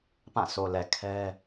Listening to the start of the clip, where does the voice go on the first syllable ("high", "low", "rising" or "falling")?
falling